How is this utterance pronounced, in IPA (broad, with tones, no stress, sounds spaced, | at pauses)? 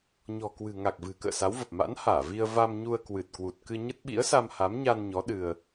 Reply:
ɲ ɔ̤˨˩ k w ɨ̤˨˩ ŋ a˨˩ k̚ v ɨ̤˨˩ k ə̰ː˧˨ s a˨˦ w v ə˨˩ p̚ m a̰˧˥ n h aː˧˩ v i˧ ə̯ v a˧ m ɲ u˧ ə̯ k w ɨ˨˩ t̚ k w u˨˩ t̚ k ɨ˧ ɲ ə˦˥ t̚ ɓ ḭ˧˥ ə̯ s a˧ m h a˨˦ m ɲ a˧ n ɲ ɔ˨˦ ɗ ɨ˧ ə̯